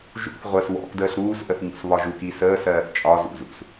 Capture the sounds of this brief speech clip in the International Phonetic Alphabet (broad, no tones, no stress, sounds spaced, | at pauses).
ʒ ṵ θ ʁʷ əː s w ɔ̰ k d əː ɬ ɾ uː s ʔ ə θ ɲ ṵ s β ɒ ʒ u k i s əː s ɜː θ t͡ʃʼ ɒ z ṵ z ṵ s